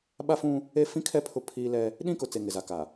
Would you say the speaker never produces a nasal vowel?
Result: no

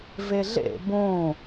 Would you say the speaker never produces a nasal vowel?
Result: no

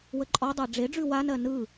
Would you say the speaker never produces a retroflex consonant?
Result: no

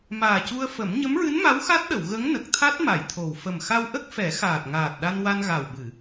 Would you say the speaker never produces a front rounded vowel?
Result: yes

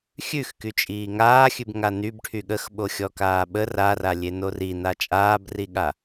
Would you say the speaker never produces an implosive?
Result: no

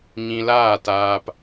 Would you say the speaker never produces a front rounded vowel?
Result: yes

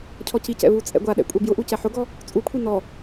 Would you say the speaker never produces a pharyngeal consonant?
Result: no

